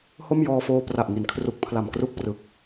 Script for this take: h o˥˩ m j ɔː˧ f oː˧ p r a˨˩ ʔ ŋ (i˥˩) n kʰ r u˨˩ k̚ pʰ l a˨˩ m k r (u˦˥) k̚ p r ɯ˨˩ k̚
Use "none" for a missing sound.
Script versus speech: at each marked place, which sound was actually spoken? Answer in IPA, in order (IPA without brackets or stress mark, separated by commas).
i˩˦, u˦˥